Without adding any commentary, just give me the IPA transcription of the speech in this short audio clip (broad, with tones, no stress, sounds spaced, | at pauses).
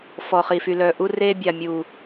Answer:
f ɔ˨ χ i˨ f y˨ l œː˨ ʔ u˦ r eː˦ bʲ a˨ mʲ u˨